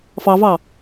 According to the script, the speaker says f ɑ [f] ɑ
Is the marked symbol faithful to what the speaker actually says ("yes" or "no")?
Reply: no